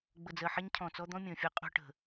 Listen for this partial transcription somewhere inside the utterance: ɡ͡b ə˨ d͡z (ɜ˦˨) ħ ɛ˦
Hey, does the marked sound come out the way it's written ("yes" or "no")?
no